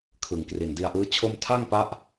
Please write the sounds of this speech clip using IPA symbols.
kʰɯ˩˦ŋkri˨˩ndi˧a̯ʔɯː˦˥ t͡ɕʰo˥˩m tʰa˥˩ŋpa˦˥ʔ

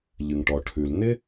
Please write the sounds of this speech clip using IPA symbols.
ʎɨ˩ŋʈɔ˩ʈʰʉ˩l n̪ɪ˥

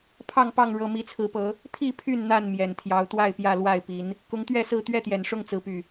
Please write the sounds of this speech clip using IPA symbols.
pʰɑ˥˨ŋpɑ˥˨ŋ ɻɤ˦ mi˨˦t͡sʰɹ̩˨˦pɤ˨˦ | t̪ʰi˥˨pʰy˥˨n n̪a˥˨n mjɛ˨˩nt̪ʰjɑ˨˦ʊ̯ t̪wa˥˨ɪ̯pjä˥˨lwa˥˨ɪ̯pi˨˦n | kʊ˨˦ŋt̪ɥɛ˥˨sɹ̩˥˨ t̪ɥɛ˥˨t̪jɛ˨˩nʂʊ˥˨ŋ t͡sɹ̩˨˦py˨˩

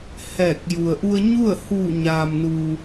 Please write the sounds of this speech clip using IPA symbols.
hɛː˧˩k̚ ju˩ə̯ʔu˧ə̯ɲu˥˨ə̯huː˧˩ ɲaː˩mnu˩

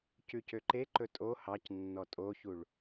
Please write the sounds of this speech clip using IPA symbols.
cʉcøǃeǃɵ tʼo hɑc nːɔtʼoçuɭ

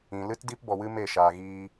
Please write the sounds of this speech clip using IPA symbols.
ĩ˨ lɨ˦tdi˦p bɔ˧wɨ˦me˦˨ ʃaː˧ɣiː˦

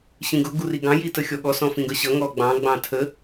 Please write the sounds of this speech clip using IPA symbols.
ɕĩɡʊ ɡuriɡɑ̃ jitəxʲɔɠɔ sɔ̃fĩɡʌɕʌ ŋɔɡ͡bɑ̃ ɡ͡bɑ̃tʰə

